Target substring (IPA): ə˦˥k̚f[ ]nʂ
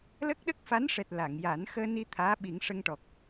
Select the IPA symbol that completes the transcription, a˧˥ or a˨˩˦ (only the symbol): a˧˥